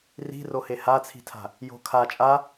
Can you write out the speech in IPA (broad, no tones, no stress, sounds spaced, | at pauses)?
r i̤ r o h e h a t͡sʰ i̤ tʰ a̤ | j o̤ kʰ a t͡ʃʼ a